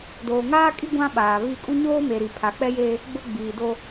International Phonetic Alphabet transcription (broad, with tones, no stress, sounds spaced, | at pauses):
d oː˨ ŋ aː˦ kʼ i˦ ɡʷ ã˦ ɓ aː˨ β i˦˨ kʼ u˦ ɲ oː˦ m e˨ ɾ i˨ pʰ a˨ k͡p ɛ˦ j e˦ | ɡ͡b ʊ˦ ɡ͡b iː˨ d o˦